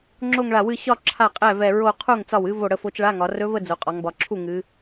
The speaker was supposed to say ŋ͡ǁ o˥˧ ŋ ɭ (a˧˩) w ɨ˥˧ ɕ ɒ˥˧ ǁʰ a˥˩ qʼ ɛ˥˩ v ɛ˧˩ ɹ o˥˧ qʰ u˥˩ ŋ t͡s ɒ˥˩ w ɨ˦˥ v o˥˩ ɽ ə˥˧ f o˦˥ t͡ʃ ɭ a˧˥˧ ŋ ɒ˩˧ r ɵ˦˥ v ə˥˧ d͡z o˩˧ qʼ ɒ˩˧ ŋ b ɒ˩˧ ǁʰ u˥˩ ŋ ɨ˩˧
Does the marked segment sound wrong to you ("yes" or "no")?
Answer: no